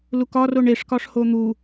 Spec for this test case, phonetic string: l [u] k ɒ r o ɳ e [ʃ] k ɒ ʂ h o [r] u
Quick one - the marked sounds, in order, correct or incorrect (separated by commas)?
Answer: correct, incorrect, incorrect